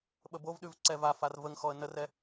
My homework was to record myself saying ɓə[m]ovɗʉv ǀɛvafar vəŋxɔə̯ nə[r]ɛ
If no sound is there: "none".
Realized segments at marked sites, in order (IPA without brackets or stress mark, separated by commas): b, r